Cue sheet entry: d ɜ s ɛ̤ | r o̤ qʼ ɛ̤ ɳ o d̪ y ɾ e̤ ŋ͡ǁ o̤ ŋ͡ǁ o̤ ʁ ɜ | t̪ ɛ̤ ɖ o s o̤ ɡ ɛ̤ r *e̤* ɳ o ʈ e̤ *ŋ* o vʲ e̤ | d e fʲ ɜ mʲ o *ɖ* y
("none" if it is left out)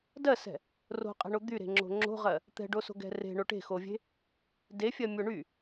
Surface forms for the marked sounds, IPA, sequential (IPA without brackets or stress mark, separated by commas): e̤, x, ɳ